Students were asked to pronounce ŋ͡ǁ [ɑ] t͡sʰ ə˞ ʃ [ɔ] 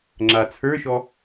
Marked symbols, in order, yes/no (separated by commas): no, yes